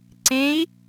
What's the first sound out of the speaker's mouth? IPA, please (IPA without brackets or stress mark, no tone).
ǀ